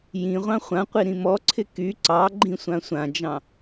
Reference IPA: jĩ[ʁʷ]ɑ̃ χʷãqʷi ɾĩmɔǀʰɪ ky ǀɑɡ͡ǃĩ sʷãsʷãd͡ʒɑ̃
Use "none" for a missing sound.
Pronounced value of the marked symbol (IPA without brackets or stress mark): ʁʷ